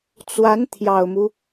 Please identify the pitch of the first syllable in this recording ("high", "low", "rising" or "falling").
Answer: rising